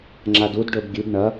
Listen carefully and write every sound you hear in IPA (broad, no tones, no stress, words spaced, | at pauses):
ŋ͡ǁadudɖɵb ɡʲʉb ɳɐ